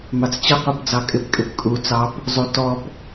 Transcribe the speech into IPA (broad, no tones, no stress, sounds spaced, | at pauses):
m ɑ t͡s t͡ɕ ʌ qʷ ɑ p d͡z ɑ kʼ ɪ p kʼ ɪ p kʼ u t͡s ɑ p | zˤ u t ɔ p